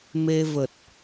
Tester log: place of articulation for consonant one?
labial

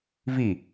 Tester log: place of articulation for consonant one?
labial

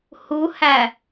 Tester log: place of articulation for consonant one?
glottal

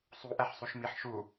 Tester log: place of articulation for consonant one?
alveolar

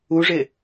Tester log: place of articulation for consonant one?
retroflex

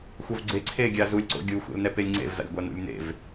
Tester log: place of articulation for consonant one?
velar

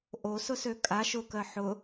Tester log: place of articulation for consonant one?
glottal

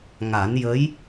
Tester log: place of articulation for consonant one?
velar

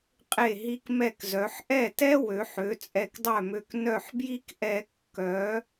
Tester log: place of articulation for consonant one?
uvular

